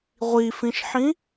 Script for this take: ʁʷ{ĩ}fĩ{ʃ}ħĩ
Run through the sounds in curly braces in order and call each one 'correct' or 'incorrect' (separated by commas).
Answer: incorrect, correct